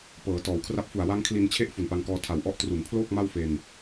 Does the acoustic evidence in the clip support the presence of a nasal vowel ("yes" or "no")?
no